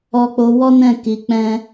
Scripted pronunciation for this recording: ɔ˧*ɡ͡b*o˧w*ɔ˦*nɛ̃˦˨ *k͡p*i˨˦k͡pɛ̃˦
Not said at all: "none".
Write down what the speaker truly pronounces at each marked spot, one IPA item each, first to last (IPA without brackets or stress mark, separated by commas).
k͡p, ɔ˦, k